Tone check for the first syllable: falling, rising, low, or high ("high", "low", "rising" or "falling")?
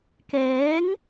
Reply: rising